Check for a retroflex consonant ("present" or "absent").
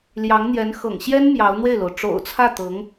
present